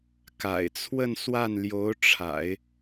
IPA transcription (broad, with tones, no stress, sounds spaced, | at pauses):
k a̰˨˩ ɪ̯ t͡sʰ w ə˥˧ n s w a˥˩ n l j o˧˥ ʊ̯ ʈ͡ʂʰ a̰˨˩˦ ɪ̯